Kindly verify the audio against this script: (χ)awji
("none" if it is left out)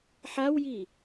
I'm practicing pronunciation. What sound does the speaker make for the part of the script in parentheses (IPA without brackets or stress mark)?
ħ